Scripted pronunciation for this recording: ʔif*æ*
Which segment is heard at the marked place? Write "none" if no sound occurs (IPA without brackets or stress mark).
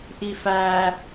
æ